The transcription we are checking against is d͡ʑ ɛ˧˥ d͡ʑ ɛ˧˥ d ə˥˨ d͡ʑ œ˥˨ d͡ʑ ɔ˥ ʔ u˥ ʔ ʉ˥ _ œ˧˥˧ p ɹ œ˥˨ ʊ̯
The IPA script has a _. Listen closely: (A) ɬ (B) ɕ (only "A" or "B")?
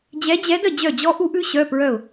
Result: B